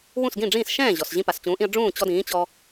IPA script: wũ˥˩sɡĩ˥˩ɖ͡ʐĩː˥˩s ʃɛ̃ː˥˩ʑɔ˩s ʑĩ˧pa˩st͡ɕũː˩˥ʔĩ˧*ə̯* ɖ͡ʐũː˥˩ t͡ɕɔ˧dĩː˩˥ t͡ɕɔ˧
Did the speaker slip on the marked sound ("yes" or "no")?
no